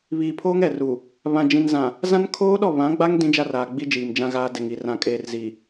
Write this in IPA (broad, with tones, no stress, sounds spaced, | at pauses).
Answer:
β iː˨ pʰ oː˦ ŋ ɛ˨ r u˨ | β ã˨ d͡ʒ ĩ˨ n z ã˨ | z ã˦ n kʰ oː˦ ɗ ɔ˦˨ β ã˨˦ ɡ͡b a˦ ŋ d ĩ˦ d͡ʒ a˦ r aː˨ ɡ͡b i˦ d͡ʒ iː˨ m d͡ʒ ã˦ ɣ aː˦ d ɛ˨ ŋ i˨ r ã˨ kʼ eː˨ r z i˨